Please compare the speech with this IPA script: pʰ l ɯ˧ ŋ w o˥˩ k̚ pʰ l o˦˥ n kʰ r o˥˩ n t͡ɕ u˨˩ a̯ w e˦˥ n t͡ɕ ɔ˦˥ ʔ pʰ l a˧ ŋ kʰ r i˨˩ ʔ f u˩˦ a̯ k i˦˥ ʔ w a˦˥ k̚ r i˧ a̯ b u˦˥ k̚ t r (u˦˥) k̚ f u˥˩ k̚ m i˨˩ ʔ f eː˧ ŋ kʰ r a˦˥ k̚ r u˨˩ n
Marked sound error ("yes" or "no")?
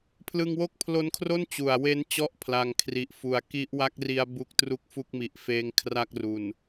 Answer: yes